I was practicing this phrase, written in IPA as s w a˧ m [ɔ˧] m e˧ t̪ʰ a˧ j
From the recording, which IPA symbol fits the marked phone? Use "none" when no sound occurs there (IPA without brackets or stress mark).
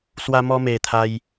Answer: ɔ˧